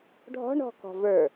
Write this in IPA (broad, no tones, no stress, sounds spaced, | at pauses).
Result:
ɖʱ ɔ̤ ɳ ɔ̤ k ɔ̤ v ə˞